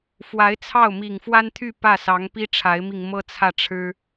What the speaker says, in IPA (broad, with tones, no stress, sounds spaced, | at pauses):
f w a˧˥ ɪ̯ t͡sʰ ɑ˥˩ ʊ̯ m i˨˩ ŋ f w a˥ n t̪ʰ y˥˧ p ä˥˩ s ɑ˧˥ ŋ p i˥ ʈ͡ʂʰ a˧˥ ɪ̯ m i˧ ŋ m ɤ˥ t͡sʰ ä˥˩ ʈ͡ʂʰ ɻ̩˥